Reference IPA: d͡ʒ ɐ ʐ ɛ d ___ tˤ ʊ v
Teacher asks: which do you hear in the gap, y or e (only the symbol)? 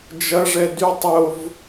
y